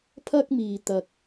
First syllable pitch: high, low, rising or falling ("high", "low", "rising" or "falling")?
high